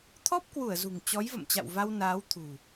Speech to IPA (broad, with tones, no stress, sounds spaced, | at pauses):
t̪ʰ ɔ˦˥ p̚ k w u˧˩ ə̯ z ṳ˨˩ ŋ t͡ɕ ɔ˨˦ j v ə̰˧˨ m t͡ɕ a̰˧˨ w v a˧ w n aː˨˦ w t̪ʰ ṳ˨˩